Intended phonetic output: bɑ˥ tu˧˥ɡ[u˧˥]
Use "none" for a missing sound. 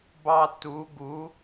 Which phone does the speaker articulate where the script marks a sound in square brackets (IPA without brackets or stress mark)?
u˧˥